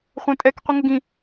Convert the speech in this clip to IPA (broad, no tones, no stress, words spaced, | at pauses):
χʷɛ̃tʼɛk qʷiŋəɡĩ